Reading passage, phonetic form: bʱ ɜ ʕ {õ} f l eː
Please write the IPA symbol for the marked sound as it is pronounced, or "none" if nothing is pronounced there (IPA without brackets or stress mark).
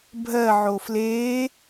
o